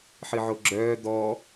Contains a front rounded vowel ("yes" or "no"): yes